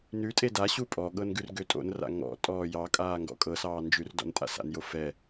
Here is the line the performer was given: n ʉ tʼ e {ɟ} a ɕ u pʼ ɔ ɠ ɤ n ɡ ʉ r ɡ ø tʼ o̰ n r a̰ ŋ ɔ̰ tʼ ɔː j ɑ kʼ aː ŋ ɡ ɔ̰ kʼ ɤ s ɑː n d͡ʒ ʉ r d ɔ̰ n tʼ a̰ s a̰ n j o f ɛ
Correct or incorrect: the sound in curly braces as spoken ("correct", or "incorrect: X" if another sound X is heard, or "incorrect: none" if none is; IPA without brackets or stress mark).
incorrect: d